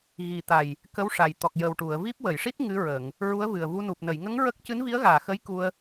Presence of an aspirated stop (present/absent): absent